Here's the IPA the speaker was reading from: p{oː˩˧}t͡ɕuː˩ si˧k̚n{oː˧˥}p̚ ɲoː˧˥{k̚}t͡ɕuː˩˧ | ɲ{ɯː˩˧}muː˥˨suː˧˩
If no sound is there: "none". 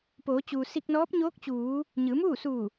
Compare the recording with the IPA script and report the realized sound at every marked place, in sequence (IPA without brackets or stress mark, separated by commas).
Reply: oː˩˧, ɔː˧˥, k̚, ɯː˩˧